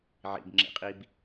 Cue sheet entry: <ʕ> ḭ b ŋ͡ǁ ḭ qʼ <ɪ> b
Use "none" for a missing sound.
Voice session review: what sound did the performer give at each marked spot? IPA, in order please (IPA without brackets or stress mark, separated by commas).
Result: ʕ, i